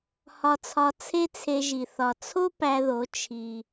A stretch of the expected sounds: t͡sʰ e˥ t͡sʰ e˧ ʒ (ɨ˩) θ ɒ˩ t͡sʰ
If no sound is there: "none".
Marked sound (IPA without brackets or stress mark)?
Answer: i˩